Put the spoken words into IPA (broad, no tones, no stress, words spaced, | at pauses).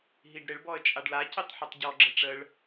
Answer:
ɦiɖɾɪɭbɔə̯ t͡ʃʼaɖlacitˤ ħutˤɟɔɡ͡ǁə ʈ͡ʂəɭ